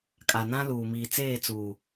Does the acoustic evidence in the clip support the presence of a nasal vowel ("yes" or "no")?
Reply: yes